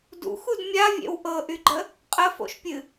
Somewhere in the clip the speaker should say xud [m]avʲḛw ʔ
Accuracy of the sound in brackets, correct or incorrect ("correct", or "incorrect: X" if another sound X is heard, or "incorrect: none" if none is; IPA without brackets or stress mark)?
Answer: incorrect: mʲ